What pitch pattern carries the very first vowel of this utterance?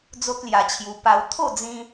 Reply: high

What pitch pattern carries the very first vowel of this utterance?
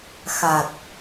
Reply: low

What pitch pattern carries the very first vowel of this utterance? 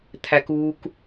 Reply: high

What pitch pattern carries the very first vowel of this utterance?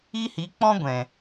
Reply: high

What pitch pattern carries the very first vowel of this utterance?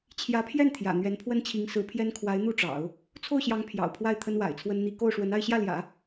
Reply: rising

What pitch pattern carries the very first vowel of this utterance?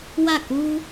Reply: falling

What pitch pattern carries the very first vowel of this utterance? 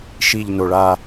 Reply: low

